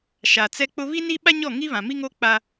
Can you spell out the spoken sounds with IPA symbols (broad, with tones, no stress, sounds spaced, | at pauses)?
ʃ a˨ t͡s ɛ˦ k͡p ʊ˦ β i˦ n i˦ ɓ a˦ ɲ ɔ˦˨ ŋ i˦ β ã˨ m i˦ ŋ o˦ k͡p a˦